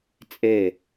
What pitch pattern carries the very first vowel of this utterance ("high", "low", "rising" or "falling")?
falling